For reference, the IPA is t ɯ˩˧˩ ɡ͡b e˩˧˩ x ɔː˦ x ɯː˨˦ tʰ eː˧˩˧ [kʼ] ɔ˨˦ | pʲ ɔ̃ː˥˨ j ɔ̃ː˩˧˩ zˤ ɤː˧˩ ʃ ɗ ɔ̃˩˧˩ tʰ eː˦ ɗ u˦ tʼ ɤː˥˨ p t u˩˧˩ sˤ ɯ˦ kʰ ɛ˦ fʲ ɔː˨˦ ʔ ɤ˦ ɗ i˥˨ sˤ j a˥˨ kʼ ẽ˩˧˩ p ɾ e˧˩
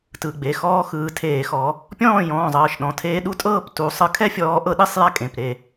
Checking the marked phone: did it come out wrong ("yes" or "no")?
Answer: yes